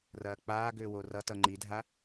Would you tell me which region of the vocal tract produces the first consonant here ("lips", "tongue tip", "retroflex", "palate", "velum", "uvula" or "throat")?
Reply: tongue tip